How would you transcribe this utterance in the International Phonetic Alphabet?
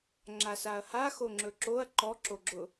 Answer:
ŋ͡ǁ a s a ɐ̯ h a x o ŋ͡ǁ ɵ ǁ o ɐ̯ ǃ ɔ ǁ o ɡ͡ǁ ʊ

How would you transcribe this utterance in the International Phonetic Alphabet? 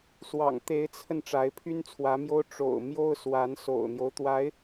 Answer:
s w ɑ̰˨˩ ŋ t̪ e˧˥ ɪ̯ t͡sʰ ə˧ n ʈ͡ʂ a˧˥ ɪ̯ pʰ y˥ n t͡sʰ w ä˧˥ m j o˥ ʊ̯ ʈ͡ʂ o̰˨˩ ʊ̯ m j o˥ ʊ̯ s w a˧˥ n s o̰˨˩ ʊ̯ n̪ j o˦ ʊ̯ t̪ w a˧˥ ɪ̯

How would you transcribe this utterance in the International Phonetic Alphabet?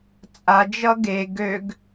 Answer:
t͡sʼ a d͡ʒ ʌ ɡ e ɡ ø ɡ

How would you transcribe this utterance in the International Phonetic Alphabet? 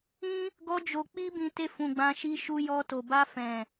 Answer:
ĩ˦ | ɡ ɔ˦ d͡ʒ o˧ k͡p i˦ b ĩ˧ t e˧ f ũ˨ ɡ͡b ã˧ ʃ i˧ ʃ u˧ j ɔ˧ t o˨ b a˧ f ɛ̃˨

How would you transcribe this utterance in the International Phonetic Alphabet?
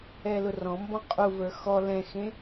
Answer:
ɛ l ʊ r ɔ̃ m b ɔ̃ qʼ u v ə˞ x ɔ l ɛ̃ x ẽ

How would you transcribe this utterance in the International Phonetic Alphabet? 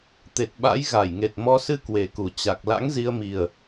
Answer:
t̪ e˨˩ t̚ ɓ a̰˧˥ j ɣ a˧˩ j ŋ e˨˩ t̚ m ɔ˨˦ s ɨ˧ k w e˨˩ k u˨˩ t͡ɕ a˨˩ k̚ l a̰˧˥ ŋ z i˧ ə̯ m i˨˩ ə̯

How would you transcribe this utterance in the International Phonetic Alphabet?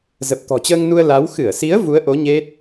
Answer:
z ə˨˩ p̚ t̪ ɔ̤˨˩ t͡ɕ əː˧ ŋ n u˧ ə̯ l a˨˦ w x ɨ˧˩ ə̯ s i˨˦ ə̯ v u˨˦ ə̯ ʔ o˨˦ ɲ e˦˥ t̚

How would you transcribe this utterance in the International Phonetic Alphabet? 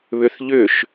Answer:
β ʏ θ ʎ ʏ ʃ

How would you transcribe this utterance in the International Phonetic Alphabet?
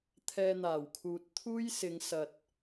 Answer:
t̪ʰ ɛː˧ n̪ aː˨˩ w kʰ uː˨ t̚ t̪ʰ uː˥ j s ɪ˨˧ ŋ s ɐ˨ t̚

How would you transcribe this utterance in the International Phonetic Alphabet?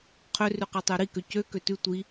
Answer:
qʰ ø r ʉ q ɤ tˤ ø ɾ i k ø c ø k ø t ʉ tʷ i

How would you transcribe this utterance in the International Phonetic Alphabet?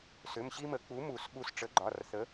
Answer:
s ʏ˩˧˩ m ɕ i˦ m ə˨˩˦ k͡p u˨˥ m u˨˩˦ s ɓ u˧˩ s ʈ͡ʂ ə˨˥ ɡ͡ǃ ɒ˩˧˩ r θ ə˨˥

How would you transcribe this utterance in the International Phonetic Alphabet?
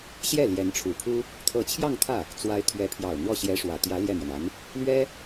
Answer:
ɕ j ɛ˥˩ l j ɛ˧˥ n ʈ͡ʂʰ u˨˩ pʰ u˥ | t̪ʰ ɤ˧˥ t͡ɕʰ j ɑ˥˧ ŋ t̪ʰ ä˥˩ | t͡s w a˧˥ ɪ̯ t̪ʰ ɥ ɛ˧˥ pʰ j ɑ˨˩ ʊ̯ n̪ w ɔ˥˩ ɕ j ɛ˧˥ ʂ w ä˨˩ t̪ j ä˧˥ l j ɛ˥˩ n̪ ɥ ɛ˩ n a˧˥ n | l ɥ ɛ˥

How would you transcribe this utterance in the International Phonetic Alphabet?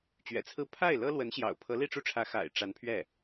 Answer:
t͡ɕ ɥ ɛ̰˨˩ t͡sʰ ɹ̩˥˧ pʰ a˥˩ ɪ̯ l ɤ˥ l w ə˧˥ n ɕ j ɑ̰˨˩ ʊ̯ pʰ ɤ˧˥ l i˥˧ ʈ͡ʂ u˥˩ ʈ͡ʂʰ ä˧˥ x a̰˨˩ ɪ̯ ʈ͡ʂ a˧˥ n pʰ ɥ ɛ˥˩

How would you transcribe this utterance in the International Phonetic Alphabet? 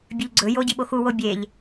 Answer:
bʲ ʉ ʎ ɡ͡ǀ ɵ j o ɟ i ɓ o x u w o bʲ e ʎ

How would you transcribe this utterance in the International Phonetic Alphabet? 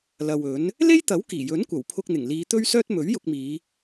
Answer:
l ɐ˨ w ɵ˨˥ n | l e˥ j t̪ ɐ˨˥ w k iː˨˩ j ɵ˨˥ n kʷ ɐ˨˩ w pʰ ʊ˧ k̚ n̪ ɪ˨˩ ŋ l iː˨˧ t̪ ɵ˥ ɥ s œː˥ t̚ m ɵ˨˥ ɥ j ʊ˧ k̚ m iː˨˧

